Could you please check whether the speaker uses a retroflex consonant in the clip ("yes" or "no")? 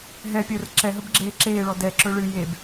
yes